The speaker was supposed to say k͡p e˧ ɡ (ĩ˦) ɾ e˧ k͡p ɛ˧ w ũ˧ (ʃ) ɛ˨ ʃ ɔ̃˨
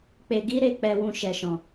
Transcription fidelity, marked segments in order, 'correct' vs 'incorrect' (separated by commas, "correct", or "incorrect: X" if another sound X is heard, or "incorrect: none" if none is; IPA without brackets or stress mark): incorrect: i˦, correct